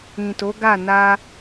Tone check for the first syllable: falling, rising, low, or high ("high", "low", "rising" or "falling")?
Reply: low